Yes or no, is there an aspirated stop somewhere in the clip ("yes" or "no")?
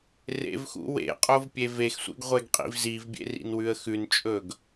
no